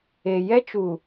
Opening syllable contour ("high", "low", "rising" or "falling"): low